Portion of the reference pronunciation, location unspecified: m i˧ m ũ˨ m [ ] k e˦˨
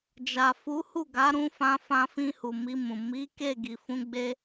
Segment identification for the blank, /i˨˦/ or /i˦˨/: i˨˦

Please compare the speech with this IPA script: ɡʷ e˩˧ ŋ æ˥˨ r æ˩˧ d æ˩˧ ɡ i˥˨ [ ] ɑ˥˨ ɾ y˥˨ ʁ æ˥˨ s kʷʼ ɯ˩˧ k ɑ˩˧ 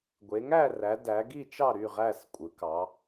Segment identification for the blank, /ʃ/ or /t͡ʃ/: t͡ʃ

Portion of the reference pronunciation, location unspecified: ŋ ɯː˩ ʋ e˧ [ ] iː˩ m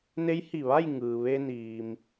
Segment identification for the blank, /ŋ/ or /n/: n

